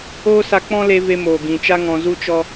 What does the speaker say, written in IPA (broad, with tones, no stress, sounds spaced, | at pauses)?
oː˦ s a˧ k͡p ɔ̃˦ l e˧ v e˧ m oː˨ ɡ ĩ˨ t͡ʃ a˦ ŋ ɔ̃˧ z u˦ t͡ʃ ɔ˦